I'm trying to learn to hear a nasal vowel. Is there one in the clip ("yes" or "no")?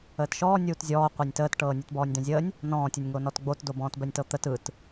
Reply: yes